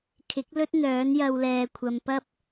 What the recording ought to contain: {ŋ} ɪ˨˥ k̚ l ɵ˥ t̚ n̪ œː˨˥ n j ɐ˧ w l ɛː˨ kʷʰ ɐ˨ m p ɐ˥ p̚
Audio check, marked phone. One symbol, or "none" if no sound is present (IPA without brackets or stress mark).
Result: kʰ